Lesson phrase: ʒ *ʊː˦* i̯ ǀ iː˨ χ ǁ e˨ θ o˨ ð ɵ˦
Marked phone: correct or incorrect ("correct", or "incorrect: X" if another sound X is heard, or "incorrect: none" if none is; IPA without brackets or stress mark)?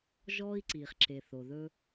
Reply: incorrect: ɔː˦